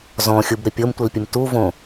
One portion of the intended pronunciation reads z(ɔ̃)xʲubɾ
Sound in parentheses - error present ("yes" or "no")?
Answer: no